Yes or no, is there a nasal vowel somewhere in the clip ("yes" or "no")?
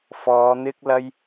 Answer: no